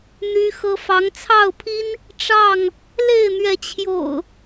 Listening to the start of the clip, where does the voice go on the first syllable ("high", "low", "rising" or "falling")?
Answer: high